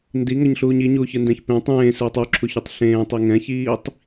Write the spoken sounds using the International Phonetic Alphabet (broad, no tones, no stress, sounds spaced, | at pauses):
n d i ŋ ʌ ɲ ɬ uː ɲ i ɲ uː ç ɯ n d ɛ̃ ç p ẽ tˤ ẽː s uː tˤ u ǁʰ u ç u tˤ ɬ ẽː tˤ i ŋ ɛ̃ ç iː tˤ